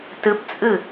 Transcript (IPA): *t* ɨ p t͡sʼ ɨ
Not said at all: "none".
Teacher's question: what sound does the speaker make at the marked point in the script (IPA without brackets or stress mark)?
t